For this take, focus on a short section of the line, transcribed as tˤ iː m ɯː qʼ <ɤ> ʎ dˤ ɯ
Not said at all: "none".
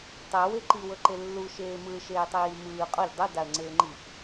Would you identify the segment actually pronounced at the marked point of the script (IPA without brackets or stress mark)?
ɔ